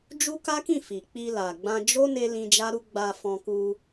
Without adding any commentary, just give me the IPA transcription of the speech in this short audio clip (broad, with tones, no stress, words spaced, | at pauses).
d͡ʒu˦ka˦kĩ˦˨ fi˨k͡pi˧la˨ɡ͡bã˧ d͡ʒo˦ ne˦lĩ˧d͡ʒa˦ɾu˦ ɡ͡ba˧fɔ̃˧ ku˧